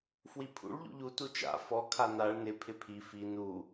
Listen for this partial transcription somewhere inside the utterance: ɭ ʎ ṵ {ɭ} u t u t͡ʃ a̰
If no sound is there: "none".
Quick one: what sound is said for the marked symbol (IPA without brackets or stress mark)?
ʎ